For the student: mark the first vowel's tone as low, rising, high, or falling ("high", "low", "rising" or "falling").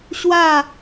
falling